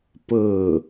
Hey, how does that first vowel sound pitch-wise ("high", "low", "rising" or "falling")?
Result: falling